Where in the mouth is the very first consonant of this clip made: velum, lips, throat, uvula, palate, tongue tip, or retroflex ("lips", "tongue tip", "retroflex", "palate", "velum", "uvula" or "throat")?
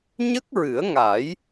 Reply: palate